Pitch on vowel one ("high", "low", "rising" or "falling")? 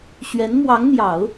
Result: rising